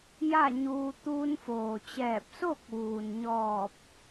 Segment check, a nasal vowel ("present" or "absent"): absent